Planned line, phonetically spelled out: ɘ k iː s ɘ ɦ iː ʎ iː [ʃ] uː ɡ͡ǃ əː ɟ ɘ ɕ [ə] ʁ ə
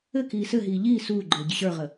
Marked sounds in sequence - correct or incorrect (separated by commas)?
incorrect, incorrect